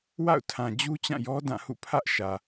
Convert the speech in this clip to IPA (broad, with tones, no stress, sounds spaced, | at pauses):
w a̰˦˨ ʊ̯ tʰ ã˨ d͡ʑ u˦ t͡ɕ ã˦˨ j ɔ˦ d ã˦˨ h ṵ˦˨ pʰ ä˦ ʔ ʃ ä˨